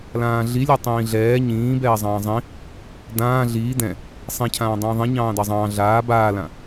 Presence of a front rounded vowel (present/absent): absent